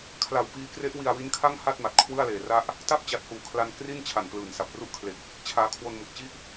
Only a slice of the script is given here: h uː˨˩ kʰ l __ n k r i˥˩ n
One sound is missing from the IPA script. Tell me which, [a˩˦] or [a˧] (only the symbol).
a˧